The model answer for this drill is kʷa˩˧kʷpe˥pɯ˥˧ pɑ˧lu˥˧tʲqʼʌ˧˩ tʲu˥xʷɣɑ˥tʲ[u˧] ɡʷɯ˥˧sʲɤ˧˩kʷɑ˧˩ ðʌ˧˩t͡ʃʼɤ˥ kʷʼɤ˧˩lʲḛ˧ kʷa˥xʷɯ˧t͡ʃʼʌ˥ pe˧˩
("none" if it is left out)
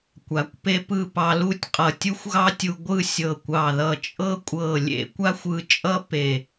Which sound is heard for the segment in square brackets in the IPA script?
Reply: u˧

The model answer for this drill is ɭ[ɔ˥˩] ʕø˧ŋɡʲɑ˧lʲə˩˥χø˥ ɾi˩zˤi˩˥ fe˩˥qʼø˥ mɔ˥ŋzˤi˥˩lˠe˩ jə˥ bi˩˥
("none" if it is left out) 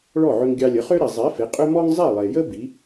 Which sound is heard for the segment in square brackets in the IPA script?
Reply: ɔ˥˩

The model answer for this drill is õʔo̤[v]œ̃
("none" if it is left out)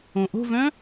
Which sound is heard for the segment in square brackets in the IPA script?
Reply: v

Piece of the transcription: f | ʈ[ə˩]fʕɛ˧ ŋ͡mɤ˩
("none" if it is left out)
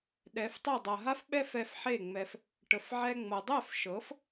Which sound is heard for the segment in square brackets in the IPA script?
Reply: ə˩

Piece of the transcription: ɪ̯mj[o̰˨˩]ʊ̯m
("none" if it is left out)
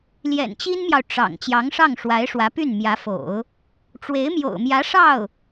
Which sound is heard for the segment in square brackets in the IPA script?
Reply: o̰˨˩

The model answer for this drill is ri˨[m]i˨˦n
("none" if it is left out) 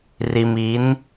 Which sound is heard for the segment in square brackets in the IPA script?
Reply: m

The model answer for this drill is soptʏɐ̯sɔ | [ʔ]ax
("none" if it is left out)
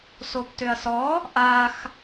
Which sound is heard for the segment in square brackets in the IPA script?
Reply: ʔ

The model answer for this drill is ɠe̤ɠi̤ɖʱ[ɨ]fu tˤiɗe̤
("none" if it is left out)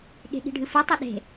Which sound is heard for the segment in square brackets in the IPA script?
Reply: ɨ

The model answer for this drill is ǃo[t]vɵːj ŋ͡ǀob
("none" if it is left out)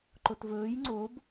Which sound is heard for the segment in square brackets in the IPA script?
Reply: t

